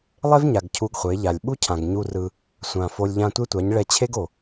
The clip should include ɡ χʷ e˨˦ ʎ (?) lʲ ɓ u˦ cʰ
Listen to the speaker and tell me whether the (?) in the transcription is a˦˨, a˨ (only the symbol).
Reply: a˨